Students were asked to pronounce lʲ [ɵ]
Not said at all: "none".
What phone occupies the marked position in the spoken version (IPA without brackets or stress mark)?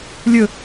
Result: ɵ